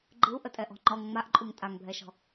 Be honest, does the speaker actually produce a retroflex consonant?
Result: no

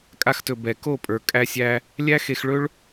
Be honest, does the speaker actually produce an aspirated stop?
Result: no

